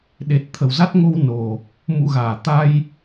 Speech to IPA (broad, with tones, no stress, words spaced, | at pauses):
ɗe˨˩t̚ t̪ʰə˧˩wza˦˥t̚ŋo˧w no˨˩ | mṵ˧˨ɣaː˧˩t̪a˧j